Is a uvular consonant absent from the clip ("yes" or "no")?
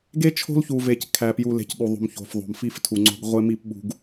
no